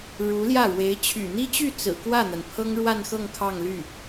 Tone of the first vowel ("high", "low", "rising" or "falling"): rising